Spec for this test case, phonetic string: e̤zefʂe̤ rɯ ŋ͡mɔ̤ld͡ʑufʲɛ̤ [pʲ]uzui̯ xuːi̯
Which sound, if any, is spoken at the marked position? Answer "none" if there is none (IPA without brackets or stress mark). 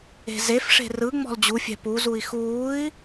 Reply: p